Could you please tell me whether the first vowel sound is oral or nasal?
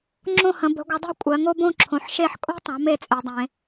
nasal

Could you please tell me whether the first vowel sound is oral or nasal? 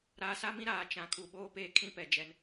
oral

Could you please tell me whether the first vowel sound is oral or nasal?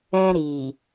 nasal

